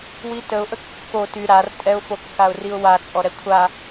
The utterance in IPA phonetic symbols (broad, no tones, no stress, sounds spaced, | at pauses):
w i t ə ʊ̯ ʔ ə kː o t y ɾ a r tʼ ɛ ʊ̯ f o kː a ʊ̯ r i ʊ̯ w a t͡sʼ ɔ ɾ ɛ kʷʰ a